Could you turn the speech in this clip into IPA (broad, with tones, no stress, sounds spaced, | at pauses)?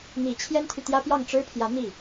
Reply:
n̪ i˨˩ t͡ɕʰ j ɛ˥ n t̪ʰ y˨ t̪ j ä˥ p j ɑ˥˩ ŋ ʈ͡ʂ ɻ̩˥ pʰ j ä˧˥ n̪ i˥˩